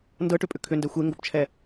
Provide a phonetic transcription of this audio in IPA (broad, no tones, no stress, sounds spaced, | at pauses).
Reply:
n d ɤ ʈ ʏ pʼ ʏ kʰ ʏ n d ɛ xʷ e ŋ ɡ o p t͡ʃʰ ɛ